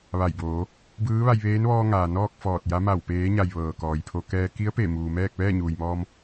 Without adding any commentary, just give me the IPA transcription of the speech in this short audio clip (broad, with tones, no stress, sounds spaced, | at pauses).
ʋ a˧˩ j b oː˩˧ | b ɯː˧˥ ʋ a˧ j ʋ eː˧˥ n ʋ ɔː˧ ŋ aː˩ n ɔː˥˨ k̚ f ɔː˧˩ t̚ j a˧˥ m a˧˩ w p eː˩˧ ɲ a˩ j ʋ ɤː˩ k ɔː˩ j pʰ o˧ k ɛː˧ k i˧˥ ə̯ p e˧˩ m uː˩ m ɛː˥˨ k̚ ʋ ɛː˥˨ ɲ uː˩ j m ɔː˧ m